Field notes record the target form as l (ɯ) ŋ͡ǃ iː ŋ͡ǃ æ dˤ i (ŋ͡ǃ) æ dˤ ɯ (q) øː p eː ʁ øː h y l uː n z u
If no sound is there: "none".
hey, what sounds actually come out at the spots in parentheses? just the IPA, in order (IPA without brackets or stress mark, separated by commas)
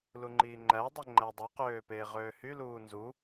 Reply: u, ŋ͡ǃ, q